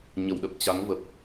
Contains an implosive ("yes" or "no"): yes